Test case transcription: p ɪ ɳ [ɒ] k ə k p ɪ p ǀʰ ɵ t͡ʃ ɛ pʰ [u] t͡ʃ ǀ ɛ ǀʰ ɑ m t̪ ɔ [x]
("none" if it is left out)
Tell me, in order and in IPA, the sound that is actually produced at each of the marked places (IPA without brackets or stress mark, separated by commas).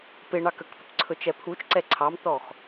ɑ, u, x